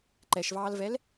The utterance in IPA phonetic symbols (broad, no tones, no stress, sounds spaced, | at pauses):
ǃ ɛ ʃ v ɑː l v ɛ l